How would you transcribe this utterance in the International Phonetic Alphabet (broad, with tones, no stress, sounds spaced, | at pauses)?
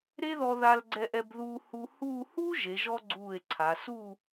ɾ e˥ ð ɔ˧ ð a˧ l ɡ͡ǀ ɛ˧ ʔ ɛ˧ b ð uː˧ h u˧ h uː˥˧ h uː˥ ʒ e˩˧ ʒ ɔ˧ ɡ͡ǀ uː˧˩ e̯ ǀʰ a˩˧ s u˥˧